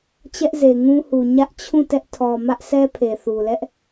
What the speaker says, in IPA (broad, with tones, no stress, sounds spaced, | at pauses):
t͡ɕ ɛ˦ ʔ z e˨ ŋ ũ˦ h u˨ ɲ ä˦ ʔ t͡ɕʰ ũ˦˨ t ɛ˦ ʔ tʰ ɔ˨ m ä˦ ʔ sʰ ɛ˦ pʰ e˨ θ u˨ l ɛ˦ ʔ